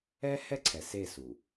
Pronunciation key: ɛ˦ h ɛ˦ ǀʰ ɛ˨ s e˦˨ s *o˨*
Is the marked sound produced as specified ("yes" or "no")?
no